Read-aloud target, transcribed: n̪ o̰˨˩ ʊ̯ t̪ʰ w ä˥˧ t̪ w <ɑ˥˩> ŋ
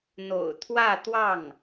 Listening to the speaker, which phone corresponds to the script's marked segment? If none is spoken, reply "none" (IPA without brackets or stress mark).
ɑ˥˩